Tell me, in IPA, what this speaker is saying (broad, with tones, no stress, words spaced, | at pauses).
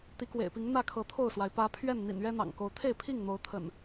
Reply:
t̪i˨˦kwḛ˨˩ɪ̯pi˨˦ŋ n̪ä˥˨kʰɤ˨˦t̪ʰo˥˨ʊ̯swa˩ɪ̯ pä˨˦ pʰɥɛ˥˨n n̪ḭ˨˩nɥɛ˦n̪ɑ̰˨˩ŋko˨˦ʊ̯ t̪ʰe˥˨ɪ̯pʰi˥˨ŋn̪o˨˦ʊ̯ t̪ʰə̰˨˩n